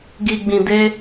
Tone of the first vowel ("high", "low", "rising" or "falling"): low